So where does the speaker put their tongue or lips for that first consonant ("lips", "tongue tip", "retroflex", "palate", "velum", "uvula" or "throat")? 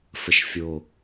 lips